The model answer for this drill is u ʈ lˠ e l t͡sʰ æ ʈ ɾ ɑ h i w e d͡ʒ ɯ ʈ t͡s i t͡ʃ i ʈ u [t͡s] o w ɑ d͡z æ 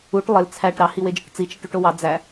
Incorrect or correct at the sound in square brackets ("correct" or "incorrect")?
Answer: incorrect